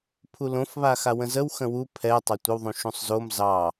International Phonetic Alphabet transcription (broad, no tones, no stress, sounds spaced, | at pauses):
pʰ u l õ f β a x a w ə̃ z ə w x ə̃ w u pʰ ɛ tˤ ɑ tʷ ə w ðˤ ũ ʃ ũ sˤ z o m z ɑ